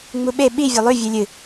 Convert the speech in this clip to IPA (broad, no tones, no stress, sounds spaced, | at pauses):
ŋ͡m u ɓ e ɓ i vʲ ɵ lˠ ʉ vʲ ɨ lʲ ɨ